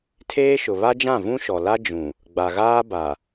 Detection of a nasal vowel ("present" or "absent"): present